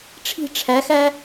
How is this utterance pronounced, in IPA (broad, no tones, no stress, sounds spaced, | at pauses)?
ʈ͡ʂʰ i̤ ʈ͡ʂʰ æ x æ